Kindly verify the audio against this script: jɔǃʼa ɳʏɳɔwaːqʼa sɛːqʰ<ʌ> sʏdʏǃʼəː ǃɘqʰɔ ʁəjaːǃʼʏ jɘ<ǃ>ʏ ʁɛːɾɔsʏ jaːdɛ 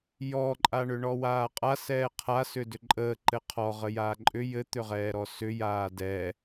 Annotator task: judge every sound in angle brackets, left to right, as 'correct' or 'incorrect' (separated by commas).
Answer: incorrect, incorrect